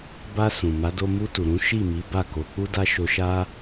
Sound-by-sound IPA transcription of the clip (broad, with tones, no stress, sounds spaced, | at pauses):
b a˧ s ũ˨ m a˨˦ d o˧ m u˧ t u˨ ɾ ũ˨˦ ʃ i˦˨ m i˨˦ b a˦˨ k o˨˦ k͡p u˦ d a˦ ʃ o˧ ʃ a˦